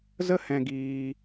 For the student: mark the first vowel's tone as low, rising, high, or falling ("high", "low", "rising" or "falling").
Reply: high